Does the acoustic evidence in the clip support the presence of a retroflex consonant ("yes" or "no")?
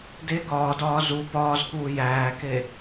no